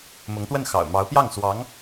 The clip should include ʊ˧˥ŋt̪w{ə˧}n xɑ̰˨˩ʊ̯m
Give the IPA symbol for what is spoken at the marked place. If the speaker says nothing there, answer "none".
ə˥˩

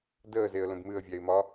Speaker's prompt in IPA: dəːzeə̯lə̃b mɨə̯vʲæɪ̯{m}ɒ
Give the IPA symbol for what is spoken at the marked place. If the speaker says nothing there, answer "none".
m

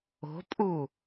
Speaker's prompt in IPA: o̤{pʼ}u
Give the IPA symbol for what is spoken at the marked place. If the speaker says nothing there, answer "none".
pʼ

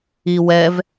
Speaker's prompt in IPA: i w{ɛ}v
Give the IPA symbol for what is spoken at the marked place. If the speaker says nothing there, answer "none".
ɛ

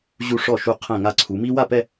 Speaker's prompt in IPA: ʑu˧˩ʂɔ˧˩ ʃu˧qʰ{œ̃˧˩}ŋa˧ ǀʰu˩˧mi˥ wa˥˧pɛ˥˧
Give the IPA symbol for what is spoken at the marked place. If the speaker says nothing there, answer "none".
ɛ̃˧˩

